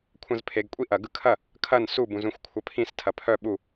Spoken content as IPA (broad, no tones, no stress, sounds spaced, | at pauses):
kʷʰ ɐ̃ z pʰ e ɡ kʷʼ i ʔ ɐ ɡ ɯ kʰ ɐ | kʰ ɐ n s u b ũ z ũ xʷ kʷʰ ɐ pʰ ĩ s tʰ ɐ pʰ œ ɓ u